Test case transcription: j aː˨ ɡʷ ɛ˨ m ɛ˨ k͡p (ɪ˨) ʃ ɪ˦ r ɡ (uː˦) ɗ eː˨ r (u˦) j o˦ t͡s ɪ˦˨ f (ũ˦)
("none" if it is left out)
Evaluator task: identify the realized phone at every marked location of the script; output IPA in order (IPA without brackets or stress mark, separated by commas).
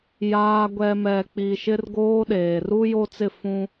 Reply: i˨, oː˦, u˦, ũ˦